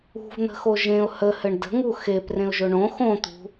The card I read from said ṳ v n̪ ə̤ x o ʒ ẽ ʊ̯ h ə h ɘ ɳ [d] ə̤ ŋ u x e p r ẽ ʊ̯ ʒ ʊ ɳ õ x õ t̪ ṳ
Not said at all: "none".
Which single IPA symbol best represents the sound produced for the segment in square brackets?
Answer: d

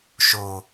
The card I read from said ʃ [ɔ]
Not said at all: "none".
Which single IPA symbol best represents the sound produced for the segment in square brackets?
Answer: o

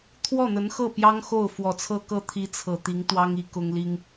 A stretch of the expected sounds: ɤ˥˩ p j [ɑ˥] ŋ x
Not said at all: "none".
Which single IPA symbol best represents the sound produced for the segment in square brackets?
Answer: ɑ˥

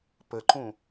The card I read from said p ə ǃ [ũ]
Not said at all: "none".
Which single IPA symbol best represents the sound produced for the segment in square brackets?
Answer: ũ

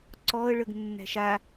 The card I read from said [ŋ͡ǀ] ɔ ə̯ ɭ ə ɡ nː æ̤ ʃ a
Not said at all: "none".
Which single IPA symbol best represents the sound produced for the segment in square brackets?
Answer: ǀ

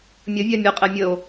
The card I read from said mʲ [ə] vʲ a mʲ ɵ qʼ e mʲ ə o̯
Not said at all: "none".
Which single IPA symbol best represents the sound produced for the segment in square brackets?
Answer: ə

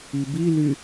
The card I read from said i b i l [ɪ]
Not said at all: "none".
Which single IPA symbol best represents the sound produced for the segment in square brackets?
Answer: y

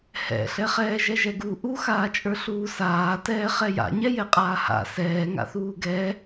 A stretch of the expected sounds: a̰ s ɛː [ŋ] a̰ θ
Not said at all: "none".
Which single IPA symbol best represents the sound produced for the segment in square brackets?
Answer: ŋ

